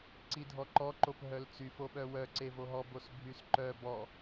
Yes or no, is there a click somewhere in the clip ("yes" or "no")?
yes